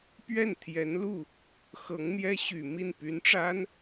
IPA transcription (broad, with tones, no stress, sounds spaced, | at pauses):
p ɥ ɛ˥˩ n t̪ʰ j ɛ˧˥ n l u˥˩ | x ɤ˧˥ ŋ n̪ j ɛ˥ ɕ y˨˩ m i˥˩ n p y˧˥ n ʈ͡ʂ a˥ n